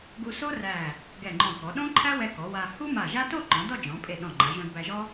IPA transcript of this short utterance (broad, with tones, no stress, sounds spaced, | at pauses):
ɡ u˧ s o˥ r æ˧˩ | ɡ ɛ˧˩ ŋ͡ǃ ɔ̃˧˩ k ɔ˩˧ ɗ õ˥ ǃʰ æ˥ w ɛ˧ k ɔ˩˧ w a˧ h u˥ m a˧˩ ʒ a˥ t o˥˧ ǃ ɔ̃˩˧ d ɔ˥˧ d͡ʒ ɔ̃˩˧ pʼ e˧˩ ɗ ɔ̃˧˩ ŋ͡ǃ a˩˧ ʒ õ˧ d b æ˧ ʒ ɔ˥